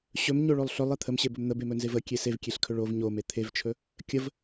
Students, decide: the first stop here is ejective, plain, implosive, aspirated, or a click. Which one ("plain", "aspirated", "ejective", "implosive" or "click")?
aspirated